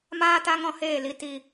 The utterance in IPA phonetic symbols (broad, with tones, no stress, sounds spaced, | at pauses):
m aː˦ t a˦ ŋ ɔ̃˧ h eː˦˨ l i˧ t i˧